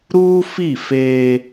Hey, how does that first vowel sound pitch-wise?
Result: high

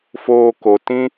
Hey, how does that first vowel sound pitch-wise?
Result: low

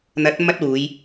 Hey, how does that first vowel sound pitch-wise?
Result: rising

